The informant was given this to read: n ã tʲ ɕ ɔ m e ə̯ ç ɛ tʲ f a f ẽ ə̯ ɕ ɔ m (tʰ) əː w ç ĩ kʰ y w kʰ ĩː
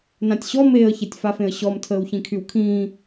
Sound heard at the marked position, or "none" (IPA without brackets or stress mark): tʰ